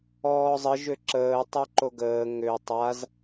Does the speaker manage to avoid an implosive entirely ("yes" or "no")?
yes